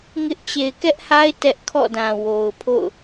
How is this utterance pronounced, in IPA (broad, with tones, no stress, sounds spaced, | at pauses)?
ŋ ɪ˦ ʔ t͡ɕ e˨ ɪ̯ k ɛ˦ ʔ h a˦ ɪ̯ t ɛ˦ ʔ kʰ ɔ̰˦˨ d ã˨ w o˨ ʊ̯ pʰ o̰˦˨ ʊ̯